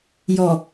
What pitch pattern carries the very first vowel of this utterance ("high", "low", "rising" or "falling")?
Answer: low